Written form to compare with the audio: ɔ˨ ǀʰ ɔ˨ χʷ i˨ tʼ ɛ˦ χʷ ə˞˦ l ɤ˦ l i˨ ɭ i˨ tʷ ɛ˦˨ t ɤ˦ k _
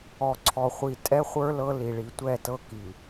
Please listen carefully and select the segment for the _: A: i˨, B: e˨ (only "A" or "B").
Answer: A